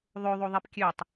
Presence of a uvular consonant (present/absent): absent